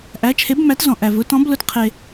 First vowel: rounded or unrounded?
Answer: unrounded